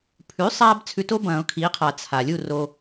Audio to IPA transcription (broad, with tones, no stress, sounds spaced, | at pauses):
pʰ ʉ˩˥ sˤ a˧ b t͡sʰ ʉ˧ t o˥ b ɐ̃ː˨˩˦ ʊ̯ kʰ iː˩˥ qʰ a˨˩˦ t͡sʰ a˩ lʲ u˥˨ r o˧